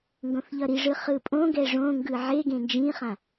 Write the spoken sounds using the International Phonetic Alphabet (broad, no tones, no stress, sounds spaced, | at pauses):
ŋ ɡ õ θ ʎ ʌ ɾ i ʐ ɯ χ ɯ pʼ õ ɡ ɛ ʐ õ ŋ ɡ ɯ ʕ e ɡ ẽ n d͡ʒ ĩ χ ã